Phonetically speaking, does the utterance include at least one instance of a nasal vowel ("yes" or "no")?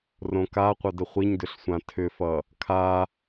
yes